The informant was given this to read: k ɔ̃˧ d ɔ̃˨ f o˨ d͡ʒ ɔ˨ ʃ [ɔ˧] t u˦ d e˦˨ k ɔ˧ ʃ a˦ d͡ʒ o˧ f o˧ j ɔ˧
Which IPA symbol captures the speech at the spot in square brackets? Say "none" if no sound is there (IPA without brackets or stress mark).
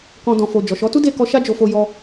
ɔ˨˦